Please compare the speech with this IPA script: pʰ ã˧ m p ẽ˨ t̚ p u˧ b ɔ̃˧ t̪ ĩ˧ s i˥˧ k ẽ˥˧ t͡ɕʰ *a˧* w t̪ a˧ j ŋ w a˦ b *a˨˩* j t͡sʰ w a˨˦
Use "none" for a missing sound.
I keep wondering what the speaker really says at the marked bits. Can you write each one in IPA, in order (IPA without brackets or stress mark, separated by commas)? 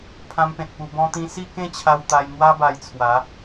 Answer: a˧, a˧